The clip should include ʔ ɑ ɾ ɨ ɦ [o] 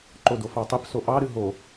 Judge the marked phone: correct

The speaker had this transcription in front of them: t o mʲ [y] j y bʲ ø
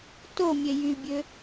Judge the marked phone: incorrect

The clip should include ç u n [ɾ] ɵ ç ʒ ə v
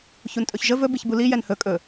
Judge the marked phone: incorrect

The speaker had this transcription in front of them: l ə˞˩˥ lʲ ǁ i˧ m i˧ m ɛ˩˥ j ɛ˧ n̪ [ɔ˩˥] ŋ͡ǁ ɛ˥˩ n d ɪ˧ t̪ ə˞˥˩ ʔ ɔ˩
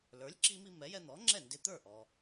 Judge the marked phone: correct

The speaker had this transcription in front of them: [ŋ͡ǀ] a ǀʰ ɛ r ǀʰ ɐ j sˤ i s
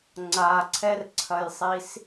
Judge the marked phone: correct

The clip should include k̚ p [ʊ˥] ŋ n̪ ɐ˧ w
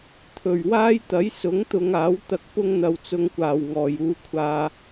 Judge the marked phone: correct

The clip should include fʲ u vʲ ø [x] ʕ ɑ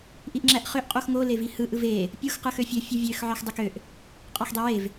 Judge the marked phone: correct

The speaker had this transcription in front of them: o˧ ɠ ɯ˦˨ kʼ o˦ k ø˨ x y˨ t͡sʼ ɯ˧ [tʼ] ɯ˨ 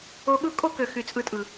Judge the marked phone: correct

